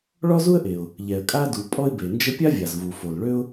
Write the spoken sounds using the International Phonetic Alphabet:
ɭ ɔ˥ z u˥ ə̯ ʔ e˩ ʊ̯ | ʎ ɛ˩ ə̯ kʼ a˥ d u˩ pʼ ɔ˥ ɪ̯ b e˩ n d͡ʒ ə˥ pʲ a˥ vʲ a˩ z v u˩ f o˩ l ɭ ø˥ ʊ̯

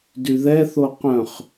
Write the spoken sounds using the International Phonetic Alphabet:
d y ð ɛ θ o q œ̃ χ

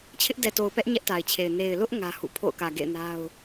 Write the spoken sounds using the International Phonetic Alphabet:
t͡ɕʰ ɪ˦ ʔ d ɛ˨ t o˨ ʊ̯ p ɛ˦ ʔ ɲ ɛ˦ ʔ t a˨ ɪ̯ t͡ɕʰ e˨ ɪ̯ n e˨ ɪ̯ l ʊ˦ ʔ ŋ ä˦ h ṵ˦˨ pʰ o̰˦˨ ʊ̯ k ä˨ ɡ ḛ˦˨ ɪ̯ n a˦ ʊ̯

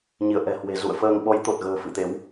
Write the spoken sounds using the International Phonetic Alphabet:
ɲ i˧˩ ə̯ ʔ ɛ̤˨˩ h w e̤˨˩ z ṵ˧˨ ə̯ f əː˧ ŋ ɓ ɔ˨˦ j t̪ o˨˩ t̚ ɣ ə̤ː˨˩ f ɨ̰˧˨ t̪ e˨˦ w

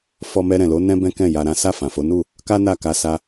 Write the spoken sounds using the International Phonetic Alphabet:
f ɔ˧ m ɛ˧ ɾ ɛ̃˨ l o˨˦ n ɛ̃˦ b ɛ̃˦ k ɛ̃˦˨ j a˧ ɾ ã˦ s a˦˨ f ã˨ f o˨˦ n u˦˨ | k a˦ n a˦˨ k a˧ s a˦

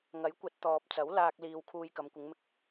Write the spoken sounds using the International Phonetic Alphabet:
ŋ ɐ˨˥ j kʷ ɐ˨˥ t̚ t̪ ɔː˨ p̚ t͡s ɐ˨˥ w l aː˧ k̚ l iː˨ w kʰ uː˧ j k ɐ˨˧ m kʷ ɪ˨˧ ŋ m ɪ˧ k̚

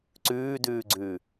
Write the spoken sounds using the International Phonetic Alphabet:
ǀ ʉː d ʉː ɡ͡ǀ ʉː

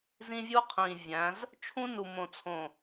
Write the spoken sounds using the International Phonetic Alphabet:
z ĩ˦ vʲ u˦ qʰ ĩː˨ vʲ æ̃˨˦ z | t͡ʃʰ ũ˦ n u˨ m õ˨ t͡sʰ õ˨

